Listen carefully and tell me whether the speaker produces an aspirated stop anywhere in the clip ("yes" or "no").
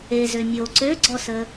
no